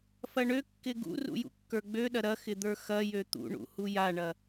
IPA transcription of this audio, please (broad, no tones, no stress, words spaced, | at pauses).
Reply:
fɐɳøkːɪ ɡṵrṵ jṵkːə˞ɡ͡bøɗɐ ɾɐ xɪd̪ə˞xɐjø t̪ṵɳṵ hujaɳɐ